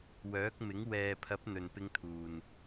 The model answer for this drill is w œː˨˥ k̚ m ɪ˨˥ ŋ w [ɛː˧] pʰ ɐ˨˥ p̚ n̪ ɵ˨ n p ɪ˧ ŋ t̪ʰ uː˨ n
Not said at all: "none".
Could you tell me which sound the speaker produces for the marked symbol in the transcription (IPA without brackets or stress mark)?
ɛː˨